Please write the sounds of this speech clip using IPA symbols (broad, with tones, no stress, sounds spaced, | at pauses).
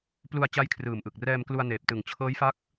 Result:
p l u˧ a̯ t͡ɕ a˦˥ j kʰ r ɯː˨˩ m ʔ ɯ˨˩ k̚ r ɛː˧ m k l u˧ a̯ n eː˨˩ p̚ t ɯ˨˩ ŋ t͡ɕʰ ɤː˦˥ j f a˦˥ k̚